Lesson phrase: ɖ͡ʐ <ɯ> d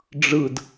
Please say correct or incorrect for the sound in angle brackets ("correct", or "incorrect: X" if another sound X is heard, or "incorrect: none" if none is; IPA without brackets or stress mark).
correct